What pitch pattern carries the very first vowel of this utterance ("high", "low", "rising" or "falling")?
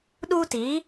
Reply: high